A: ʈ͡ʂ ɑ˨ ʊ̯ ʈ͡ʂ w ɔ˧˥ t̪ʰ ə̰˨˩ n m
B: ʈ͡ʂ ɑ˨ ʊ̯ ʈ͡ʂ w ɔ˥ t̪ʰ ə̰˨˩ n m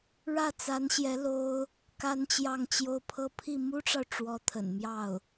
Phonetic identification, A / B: A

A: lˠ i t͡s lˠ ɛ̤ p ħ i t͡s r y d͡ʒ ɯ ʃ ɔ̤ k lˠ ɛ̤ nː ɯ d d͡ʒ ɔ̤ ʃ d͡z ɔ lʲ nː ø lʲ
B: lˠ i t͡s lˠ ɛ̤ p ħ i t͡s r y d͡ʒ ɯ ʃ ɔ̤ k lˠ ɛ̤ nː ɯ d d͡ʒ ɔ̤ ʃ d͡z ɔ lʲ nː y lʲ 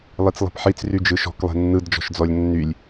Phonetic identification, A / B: B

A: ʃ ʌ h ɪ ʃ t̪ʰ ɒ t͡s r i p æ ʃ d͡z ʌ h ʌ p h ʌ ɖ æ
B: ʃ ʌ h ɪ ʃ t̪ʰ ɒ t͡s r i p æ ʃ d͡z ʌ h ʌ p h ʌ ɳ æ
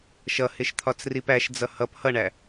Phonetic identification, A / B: B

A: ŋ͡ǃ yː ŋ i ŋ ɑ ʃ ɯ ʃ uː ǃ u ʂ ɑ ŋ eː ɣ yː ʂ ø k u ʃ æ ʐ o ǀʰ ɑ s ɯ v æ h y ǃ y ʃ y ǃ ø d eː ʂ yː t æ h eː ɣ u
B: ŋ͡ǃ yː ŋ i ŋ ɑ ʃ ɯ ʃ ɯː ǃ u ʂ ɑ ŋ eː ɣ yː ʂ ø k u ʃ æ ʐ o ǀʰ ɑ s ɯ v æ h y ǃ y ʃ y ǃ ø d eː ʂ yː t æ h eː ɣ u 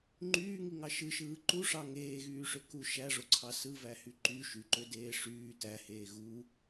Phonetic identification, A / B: B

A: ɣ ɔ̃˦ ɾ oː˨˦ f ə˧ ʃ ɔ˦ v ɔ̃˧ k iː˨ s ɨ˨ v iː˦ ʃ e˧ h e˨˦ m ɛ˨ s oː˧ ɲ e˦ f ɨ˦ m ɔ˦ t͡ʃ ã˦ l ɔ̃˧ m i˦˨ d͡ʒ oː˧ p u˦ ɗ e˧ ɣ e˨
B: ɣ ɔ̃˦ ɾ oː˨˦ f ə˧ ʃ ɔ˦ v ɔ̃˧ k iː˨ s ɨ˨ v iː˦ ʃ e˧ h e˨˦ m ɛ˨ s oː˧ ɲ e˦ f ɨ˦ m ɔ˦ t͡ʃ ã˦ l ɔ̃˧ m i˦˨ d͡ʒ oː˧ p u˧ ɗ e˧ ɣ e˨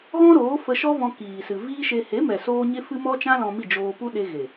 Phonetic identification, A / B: A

